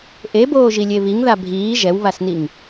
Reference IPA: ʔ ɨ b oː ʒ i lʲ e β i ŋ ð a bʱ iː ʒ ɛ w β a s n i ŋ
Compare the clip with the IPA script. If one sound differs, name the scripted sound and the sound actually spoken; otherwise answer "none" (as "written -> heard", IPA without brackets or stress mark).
ɨ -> e